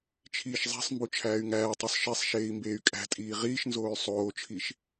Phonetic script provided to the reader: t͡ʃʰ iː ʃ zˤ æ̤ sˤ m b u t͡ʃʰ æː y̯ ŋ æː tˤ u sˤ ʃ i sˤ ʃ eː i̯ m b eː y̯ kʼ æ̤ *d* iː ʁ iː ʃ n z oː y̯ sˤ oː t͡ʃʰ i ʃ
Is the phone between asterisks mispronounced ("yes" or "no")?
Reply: yes